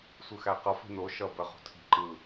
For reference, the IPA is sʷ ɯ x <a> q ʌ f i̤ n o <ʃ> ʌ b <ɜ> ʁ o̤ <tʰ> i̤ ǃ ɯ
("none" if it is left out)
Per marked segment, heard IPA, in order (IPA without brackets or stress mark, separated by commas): æ, ʃ, ɜ, tʰ